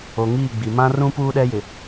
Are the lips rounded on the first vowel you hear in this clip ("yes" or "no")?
yes